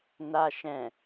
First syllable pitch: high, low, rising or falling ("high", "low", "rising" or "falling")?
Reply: low